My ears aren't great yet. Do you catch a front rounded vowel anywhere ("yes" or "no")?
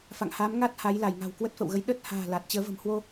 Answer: no